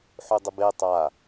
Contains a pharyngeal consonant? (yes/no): yes